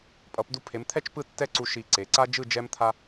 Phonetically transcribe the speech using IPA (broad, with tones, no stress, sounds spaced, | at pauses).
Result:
pʼ ʌ˩˧ p d u˧ pʰ e˩˧ m t̪ʰ ɛ˥˧ t͡ʃ p ɯ˥˧ tː ɛ˥˧ ǀ u˧ ʃ i˧˩ ǀ e˩˧ ǀ a˥ d͡ʒ ɯ˥˧ d͡ʒ ɛ˥ m t̪ʰ a˥